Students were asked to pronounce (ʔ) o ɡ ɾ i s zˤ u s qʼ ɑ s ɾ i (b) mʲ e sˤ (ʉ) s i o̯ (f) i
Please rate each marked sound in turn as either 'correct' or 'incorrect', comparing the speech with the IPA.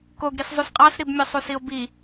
incorrect, correct, incorrect, incorrect

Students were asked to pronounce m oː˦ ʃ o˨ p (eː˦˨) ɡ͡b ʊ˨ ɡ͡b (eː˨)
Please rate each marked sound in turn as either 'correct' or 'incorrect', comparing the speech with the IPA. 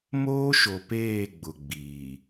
correct, incorrect

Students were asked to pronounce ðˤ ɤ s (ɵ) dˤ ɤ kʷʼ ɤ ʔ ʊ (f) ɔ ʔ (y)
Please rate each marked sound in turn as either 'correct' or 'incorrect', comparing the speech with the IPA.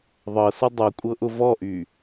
incorrect, incorrect, correct

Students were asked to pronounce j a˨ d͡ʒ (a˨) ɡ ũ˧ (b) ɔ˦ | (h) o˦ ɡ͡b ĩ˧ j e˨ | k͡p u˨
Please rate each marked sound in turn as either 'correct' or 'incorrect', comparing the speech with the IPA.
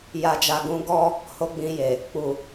correct, incorrect, correct

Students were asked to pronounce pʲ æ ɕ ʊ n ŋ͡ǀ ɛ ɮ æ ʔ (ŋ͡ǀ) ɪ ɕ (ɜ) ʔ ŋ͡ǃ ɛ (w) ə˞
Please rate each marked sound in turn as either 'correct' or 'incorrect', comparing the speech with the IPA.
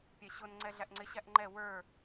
correct, incorrect, correct

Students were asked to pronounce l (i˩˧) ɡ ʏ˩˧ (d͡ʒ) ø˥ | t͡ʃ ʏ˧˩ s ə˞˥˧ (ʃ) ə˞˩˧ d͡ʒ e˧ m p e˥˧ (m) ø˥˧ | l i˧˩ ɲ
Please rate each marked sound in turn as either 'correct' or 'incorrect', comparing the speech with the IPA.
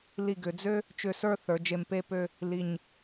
incorrect, incorrect, incorrect, incorrect

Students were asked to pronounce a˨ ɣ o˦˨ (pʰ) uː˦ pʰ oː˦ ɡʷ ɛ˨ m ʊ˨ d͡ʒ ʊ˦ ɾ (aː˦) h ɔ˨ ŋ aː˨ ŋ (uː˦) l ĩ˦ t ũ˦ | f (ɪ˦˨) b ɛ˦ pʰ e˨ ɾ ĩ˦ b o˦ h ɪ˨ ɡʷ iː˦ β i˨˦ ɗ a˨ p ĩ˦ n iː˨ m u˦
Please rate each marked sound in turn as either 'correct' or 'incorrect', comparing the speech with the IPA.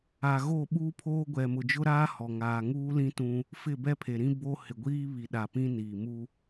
incorrect, correct, correct, correct

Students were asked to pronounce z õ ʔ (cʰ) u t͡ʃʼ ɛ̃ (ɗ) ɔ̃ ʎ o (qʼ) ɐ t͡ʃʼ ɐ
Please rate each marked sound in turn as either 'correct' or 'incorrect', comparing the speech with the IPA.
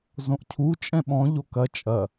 correct, incorrect, incorrect

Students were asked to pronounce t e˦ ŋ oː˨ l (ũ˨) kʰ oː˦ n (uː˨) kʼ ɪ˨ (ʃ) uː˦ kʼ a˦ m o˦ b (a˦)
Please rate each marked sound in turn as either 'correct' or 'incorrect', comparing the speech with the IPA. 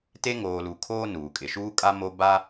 incorrect, correct, correct, correct

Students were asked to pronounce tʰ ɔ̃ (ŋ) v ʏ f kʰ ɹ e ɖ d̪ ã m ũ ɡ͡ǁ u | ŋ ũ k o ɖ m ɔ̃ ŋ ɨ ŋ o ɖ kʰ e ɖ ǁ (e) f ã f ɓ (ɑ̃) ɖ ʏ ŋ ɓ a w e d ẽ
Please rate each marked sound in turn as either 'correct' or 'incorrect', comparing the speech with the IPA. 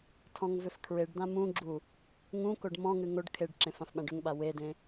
correct, incorrect, incorrect

